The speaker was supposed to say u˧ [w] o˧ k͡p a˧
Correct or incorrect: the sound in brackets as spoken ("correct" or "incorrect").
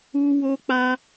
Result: correct